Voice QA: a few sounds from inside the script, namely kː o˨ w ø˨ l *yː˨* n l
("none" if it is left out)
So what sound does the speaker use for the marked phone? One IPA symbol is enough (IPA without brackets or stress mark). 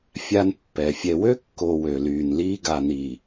yː˨